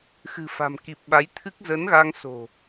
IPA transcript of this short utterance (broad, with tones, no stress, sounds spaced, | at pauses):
x ɨ̤˨˩ f a̤˨˩ m k i˨˩ p̚ ɓ a˨˦ j t̪ʰ ɨ˦˥ k̚ z ə˨˦ n ɣ a˧ ŋ s o̤˨˩